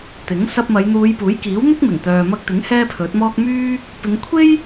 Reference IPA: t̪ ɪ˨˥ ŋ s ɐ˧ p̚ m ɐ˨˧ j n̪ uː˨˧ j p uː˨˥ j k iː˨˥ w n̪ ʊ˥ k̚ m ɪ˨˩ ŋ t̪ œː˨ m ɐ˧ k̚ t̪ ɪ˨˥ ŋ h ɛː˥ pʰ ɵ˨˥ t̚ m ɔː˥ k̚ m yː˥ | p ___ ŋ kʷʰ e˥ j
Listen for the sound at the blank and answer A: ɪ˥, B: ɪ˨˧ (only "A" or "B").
B